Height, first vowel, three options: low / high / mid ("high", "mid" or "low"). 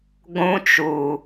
high